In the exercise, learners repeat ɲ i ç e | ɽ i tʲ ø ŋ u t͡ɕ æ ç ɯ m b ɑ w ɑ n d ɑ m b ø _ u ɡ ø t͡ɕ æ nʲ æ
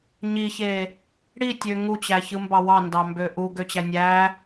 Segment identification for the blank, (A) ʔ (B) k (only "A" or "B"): A